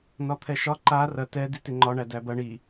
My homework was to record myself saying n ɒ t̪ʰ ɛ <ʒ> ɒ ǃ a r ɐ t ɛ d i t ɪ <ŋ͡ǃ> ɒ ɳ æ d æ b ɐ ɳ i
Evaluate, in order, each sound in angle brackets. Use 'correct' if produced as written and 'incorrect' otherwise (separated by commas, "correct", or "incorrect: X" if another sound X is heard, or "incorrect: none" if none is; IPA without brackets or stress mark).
incorrect: ʃ, correct